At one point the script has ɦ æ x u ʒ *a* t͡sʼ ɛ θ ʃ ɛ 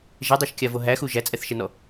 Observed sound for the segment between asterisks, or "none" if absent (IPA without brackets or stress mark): æ